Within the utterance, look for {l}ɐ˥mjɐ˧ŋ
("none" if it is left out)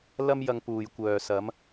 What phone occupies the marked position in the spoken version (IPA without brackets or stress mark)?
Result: l